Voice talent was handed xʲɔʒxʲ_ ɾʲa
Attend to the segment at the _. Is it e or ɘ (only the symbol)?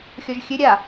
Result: ɘ